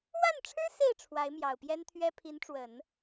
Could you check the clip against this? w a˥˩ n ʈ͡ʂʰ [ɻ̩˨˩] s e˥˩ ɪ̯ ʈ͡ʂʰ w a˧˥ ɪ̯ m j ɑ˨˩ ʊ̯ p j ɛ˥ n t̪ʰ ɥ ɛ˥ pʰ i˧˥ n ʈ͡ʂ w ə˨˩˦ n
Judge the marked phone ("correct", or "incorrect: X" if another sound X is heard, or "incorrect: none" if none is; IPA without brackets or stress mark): incorrect: ɻ̩˥